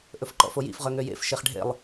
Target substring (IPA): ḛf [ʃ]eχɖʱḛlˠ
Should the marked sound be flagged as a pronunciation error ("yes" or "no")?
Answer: no